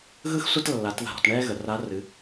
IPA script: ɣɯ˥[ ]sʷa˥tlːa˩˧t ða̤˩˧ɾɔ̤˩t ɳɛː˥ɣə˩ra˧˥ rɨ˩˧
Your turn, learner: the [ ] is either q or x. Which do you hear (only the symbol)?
x